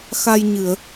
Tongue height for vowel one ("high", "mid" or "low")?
low